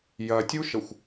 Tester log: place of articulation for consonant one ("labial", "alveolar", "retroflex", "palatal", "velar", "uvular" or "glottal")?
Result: palatal